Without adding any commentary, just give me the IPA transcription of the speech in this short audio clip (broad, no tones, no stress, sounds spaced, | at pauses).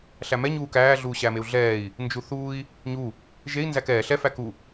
ɬ æ m ɛ ɲ uː k æː ɮ uː ɕ æ m e u̯ ɮ ɛː i̯ | n d͡ʒ u θ uː i̯ | ɲ u | ʒ e i̯ n z æ k ɛː ɬ ɛ f æ k u